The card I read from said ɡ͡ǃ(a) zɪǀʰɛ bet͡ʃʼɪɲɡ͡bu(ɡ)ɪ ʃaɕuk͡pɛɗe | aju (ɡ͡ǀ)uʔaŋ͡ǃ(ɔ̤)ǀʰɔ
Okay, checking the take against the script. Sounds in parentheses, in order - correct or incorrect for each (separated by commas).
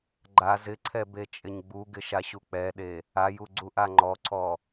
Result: correct, correct, correct, incorrect